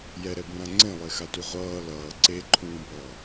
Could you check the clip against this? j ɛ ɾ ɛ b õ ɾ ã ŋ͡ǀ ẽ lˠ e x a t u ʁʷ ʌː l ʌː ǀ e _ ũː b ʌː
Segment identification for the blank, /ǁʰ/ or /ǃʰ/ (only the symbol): ǃʰ